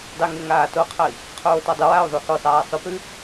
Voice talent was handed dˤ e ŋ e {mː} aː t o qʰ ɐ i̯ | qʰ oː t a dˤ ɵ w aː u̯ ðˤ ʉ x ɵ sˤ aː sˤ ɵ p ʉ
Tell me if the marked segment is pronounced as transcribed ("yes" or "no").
no